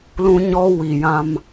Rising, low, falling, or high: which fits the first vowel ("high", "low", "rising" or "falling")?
high